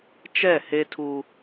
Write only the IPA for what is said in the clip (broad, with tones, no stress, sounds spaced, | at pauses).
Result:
t͡ʃ ɛ˦˨ h e˦ tʰ u˦